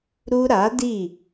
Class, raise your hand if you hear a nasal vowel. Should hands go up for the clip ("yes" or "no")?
no